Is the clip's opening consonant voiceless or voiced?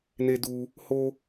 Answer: voiced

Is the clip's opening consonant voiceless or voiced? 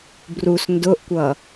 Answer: voiced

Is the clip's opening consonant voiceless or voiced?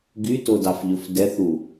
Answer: voiced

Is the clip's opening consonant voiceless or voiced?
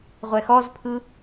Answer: voiced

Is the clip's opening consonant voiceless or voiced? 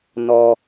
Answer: voiced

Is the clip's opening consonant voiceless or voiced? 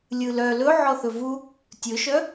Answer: voiced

